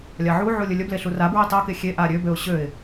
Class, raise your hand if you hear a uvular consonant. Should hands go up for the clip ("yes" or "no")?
no